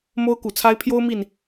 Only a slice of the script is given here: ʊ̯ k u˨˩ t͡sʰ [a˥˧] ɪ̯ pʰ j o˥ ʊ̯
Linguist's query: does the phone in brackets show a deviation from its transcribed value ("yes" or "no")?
yes